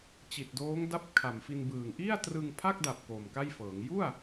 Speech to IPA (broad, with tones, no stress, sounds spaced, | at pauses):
t͡ɕ i˨˩ t̚ d oː˦˥ ŋ d a˦˥ p̚ kʰ a˨˩ m f i˧ n b ɯː˨˩ ŋ ʔ i˥˩ a̯ t r ɯ˧ ŋ pʰ a˥˩ k̚ d a˨˩ p̚ k o˨˩ m k a˥˩ j f ɤː˩˦ ŋ j u˥˩ a̯